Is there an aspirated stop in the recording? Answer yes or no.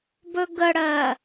no